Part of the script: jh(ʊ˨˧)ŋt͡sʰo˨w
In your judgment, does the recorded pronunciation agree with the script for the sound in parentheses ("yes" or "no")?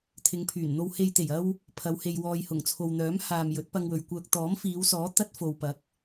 no